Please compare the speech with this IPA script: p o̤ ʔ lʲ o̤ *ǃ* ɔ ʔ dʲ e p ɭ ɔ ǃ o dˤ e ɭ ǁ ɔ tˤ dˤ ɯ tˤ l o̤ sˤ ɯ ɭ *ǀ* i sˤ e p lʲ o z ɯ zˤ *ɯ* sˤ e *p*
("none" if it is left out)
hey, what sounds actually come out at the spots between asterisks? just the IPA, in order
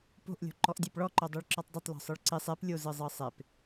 ǃ, ǀ, ɤ, p

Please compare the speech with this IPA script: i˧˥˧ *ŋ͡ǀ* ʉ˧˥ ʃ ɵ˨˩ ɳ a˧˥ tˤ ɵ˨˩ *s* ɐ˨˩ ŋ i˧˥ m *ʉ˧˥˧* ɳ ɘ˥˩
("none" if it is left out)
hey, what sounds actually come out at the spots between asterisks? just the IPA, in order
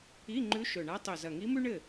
ŋ͡ǃ, z, ʉ˥

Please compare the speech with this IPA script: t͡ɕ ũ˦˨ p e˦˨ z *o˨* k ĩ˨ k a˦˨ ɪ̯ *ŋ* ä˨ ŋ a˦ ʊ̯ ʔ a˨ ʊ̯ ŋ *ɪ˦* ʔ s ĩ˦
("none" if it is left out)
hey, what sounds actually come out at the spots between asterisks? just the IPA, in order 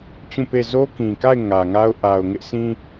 o˦, ŋ, ɪ˦

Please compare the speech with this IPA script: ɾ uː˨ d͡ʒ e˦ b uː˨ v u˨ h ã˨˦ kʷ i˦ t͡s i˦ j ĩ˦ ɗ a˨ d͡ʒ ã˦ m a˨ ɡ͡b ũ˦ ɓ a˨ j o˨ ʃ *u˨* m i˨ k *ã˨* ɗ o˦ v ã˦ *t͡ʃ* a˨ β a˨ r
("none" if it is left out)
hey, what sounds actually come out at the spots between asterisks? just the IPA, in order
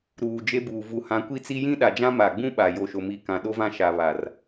o˨, ã˨, ʃ

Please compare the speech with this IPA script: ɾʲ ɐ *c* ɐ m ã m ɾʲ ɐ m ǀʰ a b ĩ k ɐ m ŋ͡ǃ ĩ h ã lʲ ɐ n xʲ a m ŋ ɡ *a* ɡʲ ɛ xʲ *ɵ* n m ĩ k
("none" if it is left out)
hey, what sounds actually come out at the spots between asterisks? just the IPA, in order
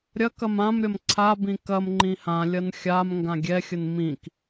k, ã, ə

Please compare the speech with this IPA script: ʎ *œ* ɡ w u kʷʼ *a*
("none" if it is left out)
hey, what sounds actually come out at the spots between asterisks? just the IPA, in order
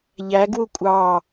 æ, ɑ

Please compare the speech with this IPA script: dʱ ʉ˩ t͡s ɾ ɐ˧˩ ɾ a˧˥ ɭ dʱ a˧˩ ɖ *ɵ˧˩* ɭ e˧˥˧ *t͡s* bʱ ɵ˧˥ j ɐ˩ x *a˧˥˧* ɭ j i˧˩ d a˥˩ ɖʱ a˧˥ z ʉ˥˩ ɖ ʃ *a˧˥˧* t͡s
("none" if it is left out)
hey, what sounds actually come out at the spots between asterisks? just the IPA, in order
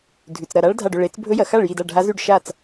ɵ˧˩, t͡s, a˥˩, a˥˩

